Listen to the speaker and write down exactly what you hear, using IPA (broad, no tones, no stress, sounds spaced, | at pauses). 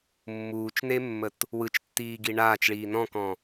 mː uː t͡ʃ n e mː ə t | w ɯ t͡ʃ tː iː ɡ i ɳ aː t͡ʃ ɭ iː n ɔ̃ k ɔ̃